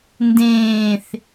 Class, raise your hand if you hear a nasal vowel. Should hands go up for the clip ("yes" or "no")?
yes